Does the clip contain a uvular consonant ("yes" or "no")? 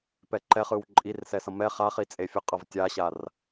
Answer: yes